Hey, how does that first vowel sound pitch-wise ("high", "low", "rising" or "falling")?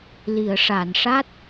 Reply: low